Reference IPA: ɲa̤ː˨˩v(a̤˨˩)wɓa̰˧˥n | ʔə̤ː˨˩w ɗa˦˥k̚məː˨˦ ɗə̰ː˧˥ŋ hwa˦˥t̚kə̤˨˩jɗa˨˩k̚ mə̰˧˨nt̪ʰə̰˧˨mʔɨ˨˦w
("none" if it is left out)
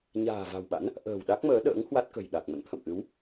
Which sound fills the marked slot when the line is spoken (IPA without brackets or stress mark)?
a̤˨˩